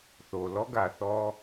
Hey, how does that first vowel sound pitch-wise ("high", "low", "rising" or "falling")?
low